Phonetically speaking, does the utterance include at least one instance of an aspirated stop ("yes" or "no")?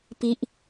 no